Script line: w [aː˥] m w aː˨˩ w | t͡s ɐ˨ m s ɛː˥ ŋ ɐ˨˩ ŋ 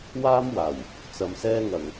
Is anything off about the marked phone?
no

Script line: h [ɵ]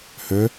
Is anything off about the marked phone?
no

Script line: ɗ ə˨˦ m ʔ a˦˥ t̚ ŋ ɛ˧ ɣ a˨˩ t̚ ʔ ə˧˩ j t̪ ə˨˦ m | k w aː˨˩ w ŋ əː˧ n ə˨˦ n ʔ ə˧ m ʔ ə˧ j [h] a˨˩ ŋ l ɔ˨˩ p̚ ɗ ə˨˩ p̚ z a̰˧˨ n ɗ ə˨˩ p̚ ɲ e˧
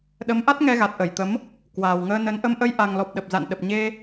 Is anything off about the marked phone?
yes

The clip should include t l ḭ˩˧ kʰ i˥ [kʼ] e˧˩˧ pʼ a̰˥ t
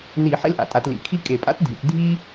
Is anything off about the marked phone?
no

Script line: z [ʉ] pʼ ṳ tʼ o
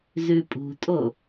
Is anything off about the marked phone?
no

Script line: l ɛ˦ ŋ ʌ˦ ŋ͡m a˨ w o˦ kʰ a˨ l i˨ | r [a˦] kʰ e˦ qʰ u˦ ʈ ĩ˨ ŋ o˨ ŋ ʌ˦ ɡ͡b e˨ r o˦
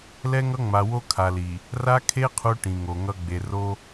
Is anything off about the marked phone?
no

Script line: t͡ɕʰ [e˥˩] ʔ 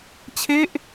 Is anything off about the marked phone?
no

